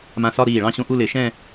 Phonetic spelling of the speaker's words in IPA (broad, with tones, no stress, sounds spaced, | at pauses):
m ã˧˩ s ɒ˥˧ ɾ iː˧˩ ɭ ɑ̃˥˧ ɕ õ˧ ʔ u˥˧ l ɪ˧˩˧ ʃ ɛ̃˥˧